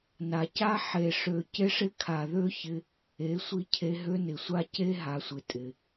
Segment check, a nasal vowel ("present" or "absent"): absent